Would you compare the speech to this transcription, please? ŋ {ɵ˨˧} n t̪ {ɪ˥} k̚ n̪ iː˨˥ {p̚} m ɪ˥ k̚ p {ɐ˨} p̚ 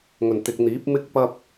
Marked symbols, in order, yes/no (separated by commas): no, no, yes, no